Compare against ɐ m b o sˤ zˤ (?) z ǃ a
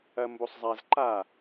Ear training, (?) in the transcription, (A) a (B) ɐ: A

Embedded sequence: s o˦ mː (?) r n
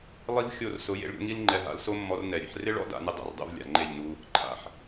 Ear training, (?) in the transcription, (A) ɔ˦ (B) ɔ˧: B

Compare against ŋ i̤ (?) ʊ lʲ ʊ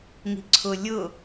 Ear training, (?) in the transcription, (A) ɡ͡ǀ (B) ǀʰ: B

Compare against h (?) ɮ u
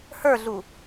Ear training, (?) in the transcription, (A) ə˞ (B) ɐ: A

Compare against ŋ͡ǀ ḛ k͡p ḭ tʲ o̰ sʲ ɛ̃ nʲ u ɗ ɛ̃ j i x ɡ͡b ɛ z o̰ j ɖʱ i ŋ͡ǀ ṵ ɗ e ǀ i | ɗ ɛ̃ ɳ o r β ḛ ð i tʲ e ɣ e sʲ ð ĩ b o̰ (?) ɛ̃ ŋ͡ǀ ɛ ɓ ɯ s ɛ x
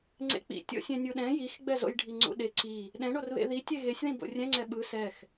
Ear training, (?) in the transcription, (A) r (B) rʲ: B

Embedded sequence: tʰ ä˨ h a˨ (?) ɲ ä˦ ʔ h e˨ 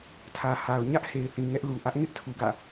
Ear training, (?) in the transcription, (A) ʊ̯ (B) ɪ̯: A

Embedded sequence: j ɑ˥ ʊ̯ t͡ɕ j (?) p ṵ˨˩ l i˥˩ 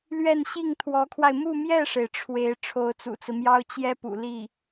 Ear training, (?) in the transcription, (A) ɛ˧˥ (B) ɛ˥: B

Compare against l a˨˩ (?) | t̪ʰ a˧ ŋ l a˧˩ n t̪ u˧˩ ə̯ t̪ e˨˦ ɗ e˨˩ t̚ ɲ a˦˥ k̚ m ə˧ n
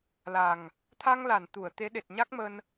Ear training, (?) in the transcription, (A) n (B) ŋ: B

